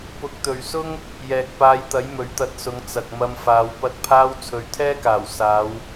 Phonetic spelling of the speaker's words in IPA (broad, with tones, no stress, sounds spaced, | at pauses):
p ʊ˨˥ k̚ t̪ ɵ˨ ɥ s ʊ˥ ŋ | j ɛː˨ k̚ p aː˧ j t̪ ɐ˨˥ j m ɵ˨˥ ɥ t̪ ɐ˧ t̚ s ʊ˨˧ ŋ t͡s ɐ˨ k̚ m ɐ˧ m f aː˨˧ w p ɐ˨˥ t̚ pʰ aː˧ w t͡sʰ ɵ˨˧ ɥ t̪ʰ ɛː˥ k aː˨˩ w s aː˨˧ w